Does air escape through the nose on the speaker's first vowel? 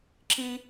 yes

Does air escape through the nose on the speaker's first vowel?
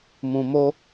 yes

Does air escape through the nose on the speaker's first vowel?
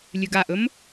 no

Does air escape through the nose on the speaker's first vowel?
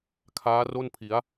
no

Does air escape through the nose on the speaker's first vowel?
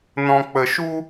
yes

